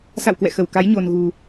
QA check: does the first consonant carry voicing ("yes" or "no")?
no